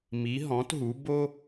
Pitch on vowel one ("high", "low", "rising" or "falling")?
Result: rising